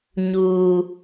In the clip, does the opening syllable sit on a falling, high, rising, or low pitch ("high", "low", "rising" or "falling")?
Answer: high